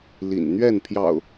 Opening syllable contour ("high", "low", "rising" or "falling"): low